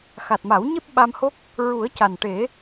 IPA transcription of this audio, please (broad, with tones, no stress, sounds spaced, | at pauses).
x a˨˩ t̚ m a˨˩˦ w ɲ e˦˥ p̚ ɓ a˧ m h o˦˥ k̚ | ɹ u˨˩˦ ə̯ c a˨˩ n ʈ e˨˩˦